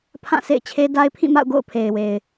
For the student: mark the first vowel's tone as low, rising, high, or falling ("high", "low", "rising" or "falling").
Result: falling